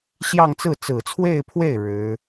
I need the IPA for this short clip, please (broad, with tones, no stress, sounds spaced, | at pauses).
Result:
ɕ j ɑ˥˧ ŋ t͡s ɹ̩˥˩ t͡s ɹ̩˨˩ t͡sʰ w e˥˧ ɪ̯ pʰ w e˥˩ ɪ̯ ɻ ɻ̩˧˥